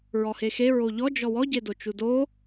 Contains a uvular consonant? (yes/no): no